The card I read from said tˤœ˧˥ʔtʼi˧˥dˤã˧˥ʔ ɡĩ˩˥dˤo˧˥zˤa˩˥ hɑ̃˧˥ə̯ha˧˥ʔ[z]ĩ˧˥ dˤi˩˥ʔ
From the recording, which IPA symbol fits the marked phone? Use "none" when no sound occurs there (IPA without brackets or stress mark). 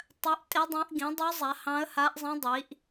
zˤ